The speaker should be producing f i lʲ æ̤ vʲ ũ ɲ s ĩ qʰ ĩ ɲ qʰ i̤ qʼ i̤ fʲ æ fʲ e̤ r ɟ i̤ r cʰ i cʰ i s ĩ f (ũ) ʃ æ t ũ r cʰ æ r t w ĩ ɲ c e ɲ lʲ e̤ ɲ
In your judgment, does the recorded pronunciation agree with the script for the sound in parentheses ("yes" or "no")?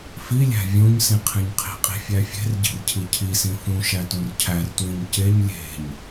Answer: yes